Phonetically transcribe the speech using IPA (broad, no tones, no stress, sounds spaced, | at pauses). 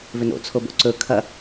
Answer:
v ʏ n o̰ t͡sʰ o b o̰ ǀ ɵ kʰ ɐ